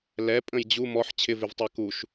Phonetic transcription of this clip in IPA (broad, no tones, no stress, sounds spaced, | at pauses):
l ɛ pʼ ə̃ j d͡ʑ u m ɔ ħ t͡ɕʰ ɪ v ɪ v tˤ a k u ʃ